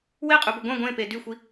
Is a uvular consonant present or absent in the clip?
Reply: present